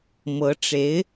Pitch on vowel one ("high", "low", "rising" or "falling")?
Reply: rising